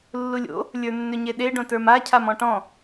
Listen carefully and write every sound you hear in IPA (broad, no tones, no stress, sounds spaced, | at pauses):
lː u lʲ o̰ | lʲ ə˞ nː ʏ ɲ e ɗ e ɖ õ t ə˞ m a cʰ a m ɔ̃ ʈ ɔ̃